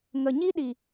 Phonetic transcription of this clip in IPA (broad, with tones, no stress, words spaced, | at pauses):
ŋə˨ɲi˦ɗi˨